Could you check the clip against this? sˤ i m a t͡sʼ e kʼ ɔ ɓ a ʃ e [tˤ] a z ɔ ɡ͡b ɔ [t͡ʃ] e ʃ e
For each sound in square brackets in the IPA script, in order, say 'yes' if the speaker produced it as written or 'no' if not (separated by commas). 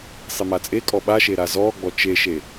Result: no, yes